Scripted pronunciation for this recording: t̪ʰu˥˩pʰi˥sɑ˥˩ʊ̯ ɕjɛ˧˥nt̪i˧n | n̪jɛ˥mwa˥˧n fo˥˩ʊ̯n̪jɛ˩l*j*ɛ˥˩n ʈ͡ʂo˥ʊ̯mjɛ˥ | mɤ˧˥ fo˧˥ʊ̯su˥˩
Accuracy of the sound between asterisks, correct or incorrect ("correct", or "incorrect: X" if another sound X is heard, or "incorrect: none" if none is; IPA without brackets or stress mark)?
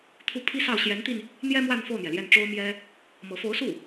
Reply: correct